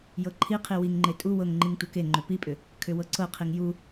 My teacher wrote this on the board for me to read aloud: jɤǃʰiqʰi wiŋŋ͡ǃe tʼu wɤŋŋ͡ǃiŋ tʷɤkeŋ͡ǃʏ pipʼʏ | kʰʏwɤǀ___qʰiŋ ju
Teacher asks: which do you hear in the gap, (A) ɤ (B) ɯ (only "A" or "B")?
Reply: A